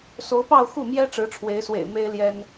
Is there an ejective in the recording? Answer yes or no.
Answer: no